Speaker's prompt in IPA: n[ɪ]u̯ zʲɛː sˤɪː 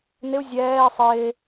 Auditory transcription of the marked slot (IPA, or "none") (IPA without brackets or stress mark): ɪ